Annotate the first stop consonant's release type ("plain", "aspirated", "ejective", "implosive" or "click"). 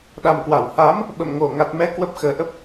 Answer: implosive